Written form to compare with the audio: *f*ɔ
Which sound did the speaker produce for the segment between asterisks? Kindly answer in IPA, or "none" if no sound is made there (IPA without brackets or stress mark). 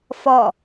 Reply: f